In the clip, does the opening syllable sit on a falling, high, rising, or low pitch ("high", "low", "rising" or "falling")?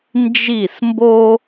falling